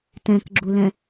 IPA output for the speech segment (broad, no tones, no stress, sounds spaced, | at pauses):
t ɛ̃ k ɡ͡ǁ u l ɛ̃